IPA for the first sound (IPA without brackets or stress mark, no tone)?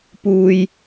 p